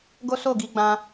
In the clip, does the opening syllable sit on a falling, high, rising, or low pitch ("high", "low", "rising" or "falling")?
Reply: high